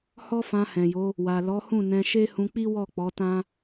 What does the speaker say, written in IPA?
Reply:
hɔ˦fã˧hɛ̃˨jo˨˦ | wa˨lɔ˨˦hũ˦˨ nɛ̃˧ʃe˦ hũ˧k͡pi˦wɔ˦˨ k͡pɔ˨˦tã˦

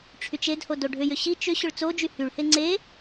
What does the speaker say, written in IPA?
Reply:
ʈ͡ʂʰyt͡ʃedho doɖʱʏjʏ ɕi t͡ʃʏ ɕʏɭt͡sod͡ʒy hyɭhe ŋ͡ǀe

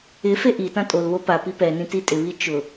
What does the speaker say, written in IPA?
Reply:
ɪ feʔitã tʼolβo pa pipɛnĩ titʼɪβi t͡ʃʊ

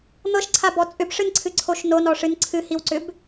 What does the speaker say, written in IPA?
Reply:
n̪ɤʃǀʰabɔ t͡sʼʏbʂɨnǀʰɨǀʰoʃ nonɔʂɨn ǀʰɨhiwǀʏb

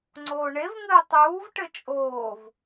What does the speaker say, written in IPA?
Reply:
ŋ͡ǀoːɳevŋɘː tˤuːvʈɘ t͡ʃʼoːv

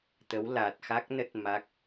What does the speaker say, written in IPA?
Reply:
t̪ə˨˦w la˨˩t̚xa˦˥k̚nə˦˥t̚ ma˦˥k̚

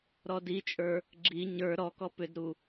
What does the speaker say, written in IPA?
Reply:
ɾɔdit͡ʃʼə˞ | ɡ͡ǁi ɲə˞ ɾɔkɔ pʏdɾu

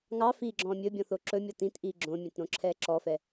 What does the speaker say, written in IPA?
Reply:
ŋɑ fiːɡ͡ǁɔ̃ːmʲɵbʲɔ̃ θoǁɵmʲɔ tĩtʔiː ɡ͡ǁõmʲɛ̃t ɾõǁʰɛːǁɔfɛ

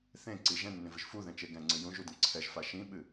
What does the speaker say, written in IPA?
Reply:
θẽ ǀi ʒɛ̃nːẽvɨʒ fuðɛ̃t͡ʃe ɡɛ̃ŋ͡ǀɨ jũʒudə̃ ǀʰɛʒfa ʃĩɓɨ

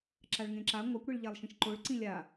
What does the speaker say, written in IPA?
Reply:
ǁaɭŋẽǁa ŋʷakʷɽiɭʎalˠʃĩʃ ǃoɭ ǀĩlʲa

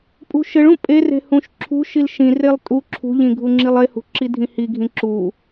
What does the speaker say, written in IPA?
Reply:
pʼṳʃɘɭũ pʼe re̤hũʃǁʰṳʃil ʃĩrelˠ tʼu ǁʰṳʎĩ ɡʱuŋ͡ǁilˠehṳ ǁidʱĩhiɡʱĩ ǁu

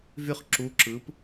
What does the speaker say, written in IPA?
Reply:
vyχ ǁu ǁɯp

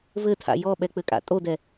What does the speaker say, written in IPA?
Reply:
vɘtʰa̰ jɔɓɛk͡pɘkʼa̰ tʼodɛ

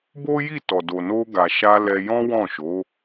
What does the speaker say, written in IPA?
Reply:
bo˦ji˦˨tɔ˨do˨ no˧ ɡa˨ʃa˧ lɛ˧ jɔ̃˦wɔ̃˦˨ʃo˨˦

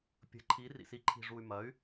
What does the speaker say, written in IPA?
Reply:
pʲə̤˩˥ǃʰi˩˥ rḭ˨˩si˩˥ǃʰi̤˨˩ ʐu˨˩y̯ mɐ˩˥y̯

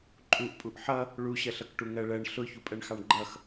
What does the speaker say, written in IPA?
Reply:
ǃʼuʔpʼuʔ ħʌ | ɭuɕɜɬʌkʈu ŋɜɭɜɳ ɬʊ çupʼɜɳxɑɳɡ͡ǃʌx

